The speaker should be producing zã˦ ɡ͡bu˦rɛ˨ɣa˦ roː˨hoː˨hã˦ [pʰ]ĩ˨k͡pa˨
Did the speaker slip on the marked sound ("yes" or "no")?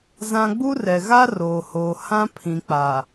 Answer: no